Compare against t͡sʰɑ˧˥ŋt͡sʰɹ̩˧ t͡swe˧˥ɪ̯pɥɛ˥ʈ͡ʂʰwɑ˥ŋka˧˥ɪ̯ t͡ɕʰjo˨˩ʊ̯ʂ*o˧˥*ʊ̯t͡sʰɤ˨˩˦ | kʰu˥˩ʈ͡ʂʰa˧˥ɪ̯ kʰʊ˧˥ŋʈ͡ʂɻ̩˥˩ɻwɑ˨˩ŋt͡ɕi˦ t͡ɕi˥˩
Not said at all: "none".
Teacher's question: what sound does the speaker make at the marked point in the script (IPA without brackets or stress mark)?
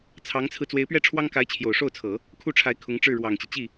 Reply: o˥˩